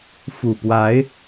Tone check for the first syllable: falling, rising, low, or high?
low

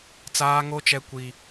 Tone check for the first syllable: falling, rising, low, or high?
high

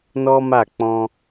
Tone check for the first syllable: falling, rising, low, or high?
high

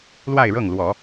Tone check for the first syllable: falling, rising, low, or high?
falling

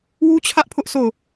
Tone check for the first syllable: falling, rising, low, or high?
high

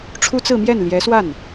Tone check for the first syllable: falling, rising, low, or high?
high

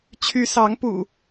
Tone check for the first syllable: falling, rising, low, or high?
rising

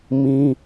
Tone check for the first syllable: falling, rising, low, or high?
high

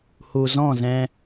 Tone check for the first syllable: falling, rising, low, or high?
low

